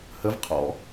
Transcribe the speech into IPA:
h ə v qʰ ɔ̰

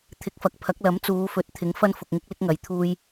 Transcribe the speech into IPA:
t̪ʰ ɪ˨˥ k̚ f ɐ˨ k̚ pʰ ɐ˨˥ k̚ l ɐ˨˥ m t͡s uː˨˧ f ɵ˨˥ t̚ t̪ʰ ɪ˨˥ ŋ f ɐ˥ n f ʊ˨ k̚ ŋ ɪ˥ k̚ l ɪ˥ k̚ ŋ ɐ˨ j t̪ʰ uː˧ j

